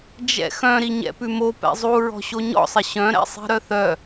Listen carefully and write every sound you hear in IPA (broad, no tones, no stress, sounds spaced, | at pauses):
d͡ʒ ɛ̰ x œ̃ ɾ i ɲ ɛ̰ p ʉ m o p ɛ̰ zˤ u ɹ ɔ̤ ɕ o ɲ ɔ̰ sˤ ɪ ɕ œ̃ ɾ ɛ̰ sˤ i̤ ɾ œ θ œ